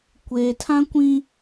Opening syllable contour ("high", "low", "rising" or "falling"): low